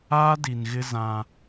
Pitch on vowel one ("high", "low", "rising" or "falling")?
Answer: high